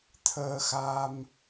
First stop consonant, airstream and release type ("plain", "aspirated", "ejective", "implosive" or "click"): aspirated